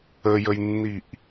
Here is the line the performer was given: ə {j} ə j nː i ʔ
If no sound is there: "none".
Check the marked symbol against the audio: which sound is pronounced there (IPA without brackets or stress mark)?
j